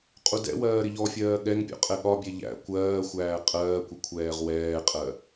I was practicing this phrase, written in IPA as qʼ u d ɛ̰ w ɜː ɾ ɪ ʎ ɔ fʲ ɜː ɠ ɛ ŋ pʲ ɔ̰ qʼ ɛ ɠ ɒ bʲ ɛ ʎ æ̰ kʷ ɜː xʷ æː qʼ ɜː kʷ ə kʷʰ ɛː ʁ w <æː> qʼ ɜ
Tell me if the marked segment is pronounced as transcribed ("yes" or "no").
no